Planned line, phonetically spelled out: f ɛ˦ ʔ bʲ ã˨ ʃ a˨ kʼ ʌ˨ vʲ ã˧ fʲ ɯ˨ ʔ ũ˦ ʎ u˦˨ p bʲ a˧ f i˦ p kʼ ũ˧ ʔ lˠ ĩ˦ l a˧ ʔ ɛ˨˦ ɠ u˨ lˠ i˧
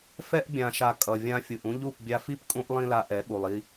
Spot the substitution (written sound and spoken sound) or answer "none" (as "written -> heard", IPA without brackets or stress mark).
none